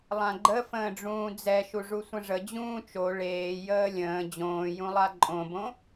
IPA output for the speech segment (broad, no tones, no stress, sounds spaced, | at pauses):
lˠ ã ɡ͡ǃ ə f ə̃ː ɖ͡ʐ ũː d͡z ɛ ʃ u ʐ u sʷ ə̃ ʐ ə d͡ʑ ũː t͡ʃ o ɭ eː j əː lʲ ə̃ː d͡ʑ õː j ũ lˠ a ǃʼ õ b õ